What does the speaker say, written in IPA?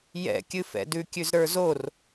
j ɛ̰ kʲ ɨ f ɛ̰ d ʉ kʲ ʉ z ɾ ə˞ z o r

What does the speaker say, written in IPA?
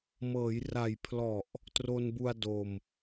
m ɤː˩˦ j r a˨˩ j pʰ l ɔ˨˩ ʔ | t r o˧ n b u˧ a̯ d o˧ m

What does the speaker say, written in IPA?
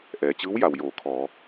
ʔ ɛː˩ t͡ɕ ɯː˧˥ w j a˩ w j oː˩˧ kʰ ɔː˩˧

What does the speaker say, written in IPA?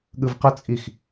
ɠ ɯ v q ʌ t͡sʼ i x

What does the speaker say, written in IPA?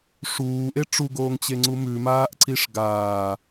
ʂ uː ʔ e ʈ͡ʂ u ɡ oː ŋ t͡ɕ e ŋ͡ǀ u m ʉ m aː ʔ ǀ i ʂ ɡ aː

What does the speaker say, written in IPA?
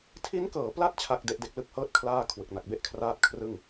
tʰ i˦˥ n k ɤː˨˩ p l a˦˥ t̚ t͡ɕʰ a˥˩ k̚ d e˦˥ ʔ d e˦˥ k̚ l ɯ˥˩ k̚ h ɤː˥˩ t̚ kʰ l aː˥˩ kʰ w ɯ˨˩ k̚ n a˨˩ k̚ b e˥˩ ʔ kʰ r aː˦˥ t̚ kʰ r ɯ˥˩ ŋ

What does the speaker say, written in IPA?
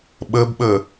ɓ ɤ b ɓ ɤ

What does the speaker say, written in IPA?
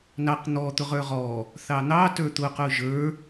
n ɑ q n̪ ɔ t̪ ʊ ʁ ə˞ ʁ ɔ | θ ɑ n̪ ɑ t ə˞ t̪ ʊ q ʊ ʒ ə˞

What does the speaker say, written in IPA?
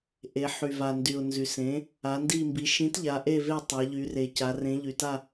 ʔ e˩˧ ħ y˩ v a˩ n d y˩ ʊ̯ n z y˩ s ẽ˩˥ | a˩˥ n d i˥˨ m b i˩˥ ʃ ĩ˩˥ t ʎ a˩˥ ʔ e˥˨ v e˥˨ tˤ a˩˧ ʎ y˩˧ r e˩ c a˩˧ r ẽ˩˥ ʎ y˩ t a˥˨

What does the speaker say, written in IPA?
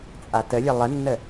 t͡sʼ a t ə lʲ ɐ lˠ ə nː ə

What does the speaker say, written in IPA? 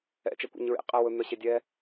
ɛ̰ t͡ʃ ɛ kʷ ḛ ɲ ɹ ḛ qʼ ɛ w ɵ n̪ œ ɕ e dʲ ɛ

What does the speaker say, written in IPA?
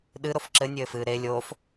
ɗ ɨ ɾ o f ǁ ɘ nʲ ɘː f ɨː ɾ e lʲ oː f

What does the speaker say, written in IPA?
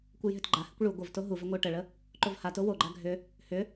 kʷ ə j ɦ ʏ t ɡ͡ǃ a h ʏ kʷ ɭ u ɡʷ ə v t o ɦ u v ʏ ŋʷ ə ʊ̯ ʈ ə ɭ ə | ǃ o v h a t o w o ɡ͡ǃ a ɡʱ ʏ | h ʏ

